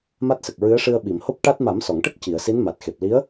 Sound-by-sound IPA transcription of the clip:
m a˦˥ t̚ s ə˨˩ k̚ ɹ ɨ˧˥ ə̯ ʂ ɨ˧ ə̯ ɓ i˨˩˨ m h o˦˥ p̚ ʈ a˦˥ t̚ m a˨˩˦ m s ɔ˨˩˨ ŋ ʈ ə˦˥ k̚ c i˨˩˨ ə̯ s i˧˥ n m a˨˩ t̚ x e˨˩ p̚ l i˧˥ ə̯

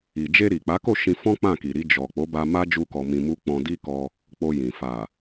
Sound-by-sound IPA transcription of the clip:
i˨ d͡ʒ e˧ ɾ i˨ k͡p a˨˦ k o˦˨ ʃ ĩ˧ f ɔ̃˦ k͡p ã˦˨ k i˨ ɾ i˧ d͡ʒ ɔ˨ k͡p o˨˦ b a˧ m a˦ d͡ʒ u˦ k ɔ˧ m ĩ˧ m u˦ k͡p ɔ̃˧ d i˦ k ɔ˧ | k͡p o˧ j ĩ˨ f a˨

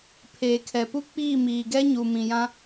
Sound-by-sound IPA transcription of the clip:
pʰ eː˨ kʰ ɛ˨ p u˦ k͡p iː˦˨ m iː˨ ɡ ɛ˦ ɲ u˨ m ĩ˨ j ã˦

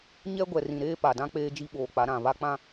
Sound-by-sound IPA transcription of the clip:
ɲ ɛ˦ ɡʷ ɛ˨ r ĩ˨ ɾ eː˦ p a˨ d ã˦ k͡p eː˦ d͡ʒ i˦ ɓ oː˨ k͡p a˨˦ ɾ ã˨ β a˦ k͡p ã˦

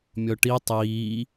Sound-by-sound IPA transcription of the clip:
mʲ ɔ ʈ i tˤ iː

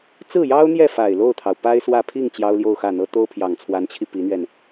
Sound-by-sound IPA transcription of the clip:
t͡s ɹ̩˥˩ j ɑ˥ ʊ̯ n̪ j ɛ˥˩ f a˨˩ ɪ̯ l o˥˩ ʊ̯ t̪ʰ ɑ˩ ʊ̯ p a˥ ɪ̯ s w ä˥˧ pʰ i˥˩ ŋ t͡ɕ j ɑ˥ ʊ̯ l j o˥˧ ʊ̯ x ä˥˩ n̪ ɤ˥ t̪ o˥ ʊ̯ pʰ j ɑ˨˩ ŋ t͡sʰ w a˧˥ n t͡ɕʰ i˧ p i˧˥ n̪ ɥ ɛ˧ n

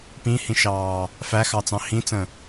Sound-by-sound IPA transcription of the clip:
p ĩ h ĩ ʃ ɑː | f æ x ɑ t͡s ɑ̃ h ĩ t͡s ə̃

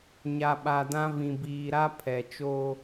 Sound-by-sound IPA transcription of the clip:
ɲ a˨ ɓ a˨ d ã˦ v ĩ˨ b iː˨ ɾ a˦ pʰ ɛ˨ t͡ʃ oː˦

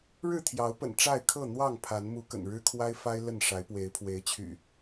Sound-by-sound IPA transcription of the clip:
ɻ ɻ̩˥˨ t̪ʰ j ɑ˨˦ ʊ̯ p ə̰˨˩ n ʈ͡ʂ a˥˨ ɪ̯ kʰ ɤ˥˨ n̪ w ɑ˥˨ ŋ pʰ a˨˦ n m u˨˦ k ə̰˨˩ n ɻ ɻ̩˦ kʰ w a˦ ɪ̯ f a˦ ɪ̯ l ə˥˨ n ʂ a˨˦ ɪ̯ p w e˨˦ ɪ̯ pʰ w e˨˦ ɪ̯ t͡ɕʰ y̰˨˩

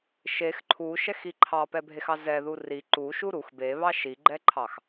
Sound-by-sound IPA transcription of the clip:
ʃ e x ǃʰ u ʃ ɛ x i ǃʰ ɑ p ɛ bʱ e x ɑ z ɛ ð u r i ǃ u ʃ u ɾ u x b e β ɑ ʃ i ɡ͡ǃ ɛ ǃʰ ɑ x

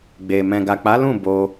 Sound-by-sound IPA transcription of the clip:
ɡ͡b e˨ m ɛ̃˨ ɡ a˨ k͡p a˨˦ l ũ˦˨ b o˧

